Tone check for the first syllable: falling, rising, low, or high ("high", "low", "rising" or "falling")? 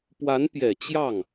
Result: rising